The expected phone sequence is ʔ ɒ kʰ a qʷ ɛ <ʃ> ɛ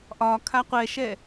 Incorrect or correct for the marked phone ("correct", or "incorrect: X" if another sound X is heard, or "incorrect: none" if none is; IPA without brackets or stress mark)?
correct